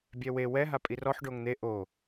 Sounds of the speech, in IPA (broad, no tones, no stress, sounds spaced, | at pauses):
bʲ ɛ w e w ɛ ɦ a pʼ i r ɔ ħ ɖ o ŋ n̪ e ʔ o